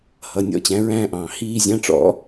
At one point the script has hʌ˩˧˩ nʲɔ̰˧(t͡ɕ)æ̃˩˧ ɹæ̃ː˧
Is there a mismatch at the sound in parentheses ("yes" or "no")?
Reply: no